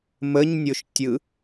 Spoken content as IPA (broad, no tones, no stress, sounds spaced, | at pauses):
m ə ɲ nʲ o ʃ tʲ ɯ